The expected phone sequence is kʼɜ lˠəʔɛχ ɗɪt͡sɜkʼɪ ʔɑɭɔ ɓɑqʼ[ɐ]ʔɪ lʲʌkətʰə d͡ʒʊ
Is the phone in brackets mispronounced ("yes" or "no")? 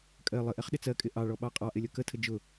yes